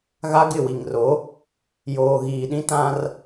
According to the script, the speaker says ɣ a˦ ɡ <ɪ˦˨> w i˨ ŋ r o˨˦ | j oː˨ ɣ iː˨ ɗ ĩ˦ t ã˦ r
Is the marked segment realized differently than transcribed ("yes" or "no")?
no